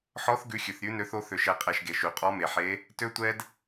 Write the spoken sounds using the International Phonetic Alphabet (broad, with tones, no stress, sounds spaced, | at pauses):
ħ ɔ˦˥ θ ɡ ʉ˦˥ xʲ ʉ˧ θ ɾʲ ʉ˦˥ n ø˦˥ θ o˦˥ θ ø˧ ʃ ɛ˧ qʼ ɛ˧ ʃ ɡ e˧ ʃ y˧ qʼ ɔ˦˥ m e˧ ħ e˦˥ | t ø˧ tʷ ɛ˧ d